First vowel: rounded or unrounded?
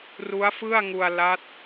rounded